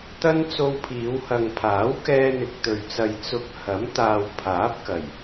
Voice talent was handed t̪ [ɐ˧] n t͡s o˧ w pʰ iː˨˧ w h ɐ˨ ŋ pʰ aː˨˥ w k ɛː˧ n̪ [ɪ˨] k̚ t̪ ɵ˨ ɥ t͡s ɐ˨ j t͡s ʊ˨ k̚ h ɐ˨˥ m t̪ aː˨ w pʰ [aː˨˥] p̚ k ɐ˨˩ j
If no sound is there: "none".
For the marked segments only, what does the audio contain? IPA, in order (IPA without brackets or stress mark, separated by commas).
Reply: ɐ˥, ɪ˨, aː˨˥